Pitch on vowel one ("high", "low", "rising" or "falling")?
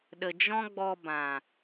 low